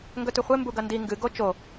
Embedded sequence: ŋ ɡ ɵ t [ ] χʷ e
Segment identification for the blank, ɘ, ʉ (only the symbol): ʉ